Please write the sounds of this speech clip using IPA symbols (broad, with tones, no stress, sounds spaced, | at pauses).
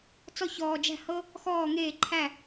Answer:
t͡s ɔ˥ ç ɔː˧ d͡ʒ æ̤˥˧ h ɤ˥ | x ɔː˥˧ ŋ eː˥˧ ǃʰ æ˥˧